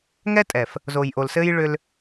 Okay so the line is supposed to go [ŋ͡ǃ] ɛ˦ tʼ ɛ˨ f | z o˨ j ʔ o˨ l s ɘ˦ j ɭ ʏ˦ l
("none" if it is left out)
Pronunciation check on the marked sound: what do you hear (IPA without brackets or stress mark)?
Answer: ŋ